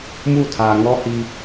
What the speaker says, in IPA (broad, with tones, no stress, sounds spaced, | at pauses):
m u˦˨ tʰ a˨ ŋ ɔ˦ h i˦